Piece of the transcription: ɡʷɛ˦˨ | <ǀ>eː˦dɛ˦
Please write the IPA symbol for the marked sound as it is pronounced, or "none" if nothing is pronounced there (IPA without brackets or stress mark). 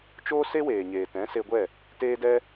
t